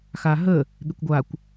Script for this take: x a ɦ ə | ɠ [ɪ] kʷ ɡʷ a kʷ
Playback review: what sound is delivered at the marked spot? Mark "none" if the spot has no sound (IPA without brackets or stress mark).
ɪ